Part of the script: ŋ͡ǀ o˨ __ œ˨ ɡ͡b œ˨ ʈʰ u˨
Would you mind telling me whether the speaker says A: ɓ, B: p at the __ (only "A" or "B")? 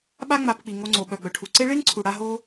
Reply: A